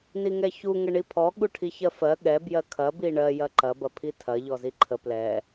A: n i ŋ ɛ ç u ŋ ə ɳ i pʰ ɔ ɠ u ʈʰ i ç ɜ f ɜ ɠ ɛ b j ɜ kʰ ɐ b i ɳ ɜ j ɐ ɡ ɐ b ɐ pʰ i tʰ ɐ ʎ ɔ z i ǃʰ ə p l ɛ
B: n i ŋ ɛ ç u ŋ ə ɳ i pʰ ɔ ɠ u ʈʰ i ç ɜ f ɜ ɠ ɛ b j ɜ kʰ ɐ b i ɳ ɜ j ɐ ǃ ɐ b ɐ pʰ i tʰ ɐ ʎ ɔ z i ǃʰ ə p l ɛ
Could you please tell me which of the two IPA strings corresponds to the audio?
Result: B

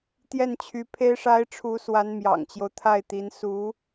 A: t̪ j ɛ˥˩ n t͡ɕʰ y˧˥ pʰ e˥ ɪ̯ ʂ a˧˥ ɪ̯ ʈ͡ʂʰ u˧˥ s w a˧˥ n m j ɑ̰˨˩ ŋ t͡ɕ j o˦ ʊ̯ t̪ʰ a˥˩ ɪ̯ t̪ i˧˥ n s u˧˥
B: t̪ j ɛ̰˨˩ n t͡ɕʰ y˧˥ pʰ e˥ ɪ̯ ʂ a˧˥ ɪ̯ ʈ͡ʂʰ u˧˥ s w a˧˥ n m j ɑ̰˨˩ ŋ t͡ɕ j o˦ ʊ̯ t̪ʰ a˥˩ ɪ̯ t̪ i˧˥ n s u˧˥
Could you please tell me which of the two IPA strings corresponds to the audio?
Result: A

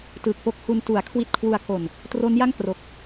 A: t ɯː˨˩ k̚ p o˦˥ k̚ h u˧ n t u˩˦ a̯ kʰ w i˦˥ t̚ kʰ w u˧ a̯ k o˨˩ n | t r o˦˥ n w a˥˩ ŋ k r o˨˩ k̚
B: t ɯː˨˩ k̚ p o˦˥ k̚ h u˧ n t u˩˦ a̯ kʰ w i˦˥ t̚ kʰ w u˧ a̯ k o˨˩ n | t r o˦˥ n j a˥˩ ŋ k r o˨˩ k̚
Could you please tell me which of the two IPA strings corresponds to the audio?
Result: B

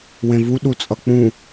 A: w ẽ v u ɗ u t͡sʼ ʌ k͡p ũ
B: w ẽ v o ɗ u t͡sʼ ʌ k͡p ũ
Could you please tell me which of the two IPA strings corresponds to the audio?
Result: A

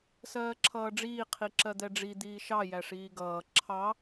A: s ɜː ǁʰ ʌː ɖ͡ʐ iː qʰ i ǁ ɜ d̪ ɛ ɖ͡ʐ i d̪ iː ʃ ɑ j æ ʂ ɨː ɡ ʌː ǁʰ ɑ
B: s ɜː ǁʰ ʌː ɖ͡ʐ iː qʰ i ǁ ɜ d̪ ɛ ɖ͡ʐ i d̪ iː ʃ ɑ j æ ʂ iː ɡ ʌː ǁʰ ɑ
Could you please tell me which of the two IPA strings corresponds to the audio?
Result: B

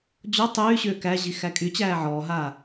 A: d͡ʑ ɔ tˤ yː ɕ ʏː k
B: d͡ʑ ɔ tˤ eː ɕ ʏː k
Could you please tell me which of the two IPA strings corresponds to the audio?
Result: A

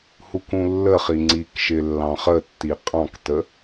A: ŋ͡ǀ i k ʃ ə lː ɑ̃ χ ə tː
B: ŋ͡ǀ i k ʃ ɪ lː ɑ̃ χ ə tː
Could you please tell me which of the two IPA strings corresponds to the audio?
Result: B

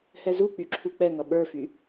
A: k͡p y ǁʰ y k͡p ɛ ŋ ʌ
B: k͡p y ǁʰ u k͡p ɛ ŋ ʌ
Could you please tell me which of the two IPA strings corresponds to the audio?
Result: B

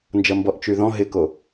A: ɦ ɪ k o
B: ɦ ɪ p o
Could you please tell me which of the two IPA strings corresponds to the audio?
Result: A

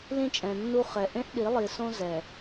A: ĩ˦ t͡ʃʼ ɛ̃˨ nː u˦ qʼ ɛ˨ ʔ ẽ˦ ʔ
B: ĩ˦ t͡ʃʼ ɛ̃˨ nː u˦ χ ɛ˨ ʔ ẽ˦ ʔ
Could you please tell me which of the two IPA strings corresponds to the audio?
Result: B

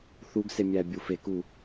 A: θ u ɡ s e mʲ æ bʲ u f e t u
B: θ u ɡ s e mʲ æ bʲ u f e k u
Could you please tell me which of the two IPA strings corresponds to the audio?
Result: B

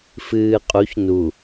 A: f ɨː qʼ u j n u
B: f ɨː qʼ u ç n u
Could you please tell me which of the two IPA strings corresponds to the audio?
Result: B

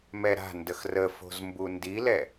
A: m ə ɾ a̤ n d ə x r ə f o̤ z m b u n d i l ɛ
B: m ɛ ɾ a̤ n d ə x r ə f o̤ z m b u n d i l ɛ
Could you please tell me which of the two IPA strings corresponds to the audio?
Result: B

